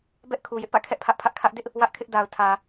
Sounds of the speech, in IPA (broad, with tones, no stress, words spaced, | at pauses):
bɛ˦ʔkʰu˨jɪ˦ʔ pä̰˦˨kʰɛ˦ʔpʰä˦ʔpʰä˦ʔ kʰä˦ʔ dɪ˦ʔ | wä˦ʔkʰɪ˦ʔda˨ʊ̯ tʰä˨